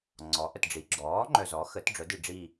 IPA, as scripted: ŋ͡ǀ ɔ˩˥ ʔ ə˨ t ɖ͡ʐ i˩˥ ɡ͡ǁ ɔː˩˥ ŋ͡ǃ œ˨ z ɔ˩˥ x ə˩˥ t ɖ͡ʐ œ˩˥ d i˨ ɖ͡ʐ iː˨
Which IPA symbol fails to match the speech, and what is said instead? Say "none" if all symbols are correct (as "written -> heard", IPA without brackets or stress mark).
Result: iː˨ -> iː˦˨